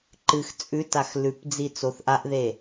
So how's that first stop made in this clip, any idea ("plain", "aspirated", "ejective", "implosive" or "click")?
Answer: click